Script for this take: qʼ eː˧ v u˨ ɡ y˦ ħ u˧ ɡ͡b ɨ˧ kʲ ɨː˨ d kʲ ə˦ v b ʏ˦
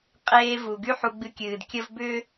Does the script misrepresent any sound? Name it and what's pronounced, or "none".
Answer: none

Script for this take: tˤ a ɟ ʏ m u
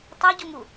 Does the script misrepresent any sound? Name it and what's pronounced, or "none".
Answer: ʏ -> u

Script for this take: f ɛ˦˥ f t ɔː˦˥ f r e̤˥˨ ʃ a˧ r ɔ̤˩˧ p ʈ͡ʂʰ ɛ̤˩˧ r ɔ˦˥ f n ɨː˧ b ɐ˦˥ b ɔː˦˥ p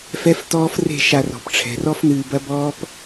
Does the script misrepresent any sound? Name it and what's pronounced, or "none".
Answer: none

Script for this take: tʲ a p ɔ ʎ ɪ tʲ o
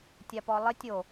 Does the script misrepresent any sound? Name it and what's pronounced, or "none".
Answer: ʎ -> lˠ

